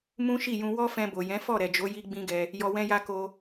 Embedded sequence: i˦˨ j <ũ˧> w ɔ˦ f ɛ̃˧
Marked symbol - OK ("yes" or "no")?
yes